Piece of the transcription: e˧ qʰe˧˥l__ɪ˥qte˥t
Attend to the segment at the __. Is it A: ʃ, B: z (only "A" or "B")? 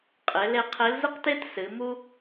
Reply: B